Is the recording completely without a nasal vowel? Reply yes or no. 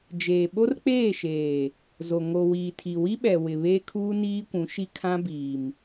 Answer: no